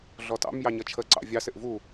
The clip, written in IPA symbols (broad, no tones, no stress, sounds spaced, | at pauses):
ɮ ɔ t ɑ̰ m j ɑ ɲ ʌ t͡ʃʰ ə ǀ ɑ̰ vʲ ɑ s ɪ ʔ v u